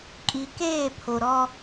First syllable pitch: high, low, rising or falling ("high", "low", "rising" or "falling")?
low